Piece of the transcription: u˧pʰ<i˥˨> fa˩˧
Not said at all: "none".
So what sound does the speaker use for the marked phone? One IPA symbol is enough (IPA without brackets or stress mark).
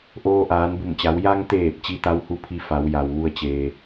i˧